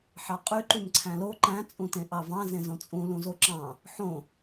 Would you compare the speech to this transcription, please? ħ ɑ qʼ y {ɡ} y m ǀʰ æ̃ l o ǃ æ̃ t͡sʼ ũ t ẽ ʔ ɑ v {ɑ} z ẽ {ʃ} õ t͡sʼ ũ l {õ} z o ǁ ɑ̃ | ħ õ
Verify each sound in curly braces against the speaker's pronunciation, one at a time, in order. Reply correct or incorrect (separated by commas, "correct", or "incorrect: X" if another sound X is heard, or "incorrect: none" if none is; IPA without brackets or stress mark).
incorrect: ǃ, incorrect: ɑ̃, incorrect: z, incorrect: ũ